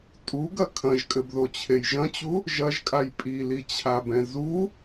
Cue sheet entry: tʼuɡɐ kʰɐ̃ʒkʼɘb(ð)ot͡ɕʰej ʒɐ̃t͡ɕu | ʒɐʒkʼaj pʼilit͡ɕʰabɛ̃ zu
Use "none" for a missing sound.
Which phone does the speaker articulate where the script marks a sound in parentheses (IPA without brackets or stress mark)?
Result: ð